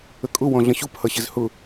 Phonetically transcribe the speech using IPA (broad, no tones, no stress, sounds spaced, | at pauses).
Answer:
ə kʼ ʊ w ɔ̃ ɮ ə̃ ɕ u p h ʌ ɕ ɪ z h ʊ